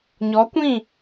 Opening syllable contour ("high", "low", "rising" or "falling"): rising